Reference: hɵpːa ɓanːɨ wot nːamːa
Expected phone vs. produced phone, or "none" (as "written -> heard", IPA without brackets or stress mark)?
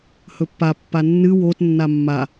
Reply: ɓ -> pː